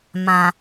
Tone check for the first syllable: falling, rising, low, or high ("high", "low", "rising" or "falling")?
low